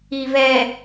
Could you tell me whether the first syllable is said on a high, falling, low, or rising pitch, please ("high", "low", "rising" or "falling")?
low